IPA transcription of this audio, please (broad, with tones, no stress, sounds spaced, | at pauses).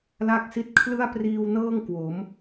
l a˥˩ k̚ s i˥˩ t̚ kʰ l ɯ˥˩ a̯ p r iː˧ w n ɤː˥˩ ŋ k w o˩˦ m